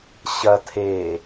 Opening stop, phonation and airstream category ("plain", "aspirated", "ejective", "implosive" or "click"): aspirated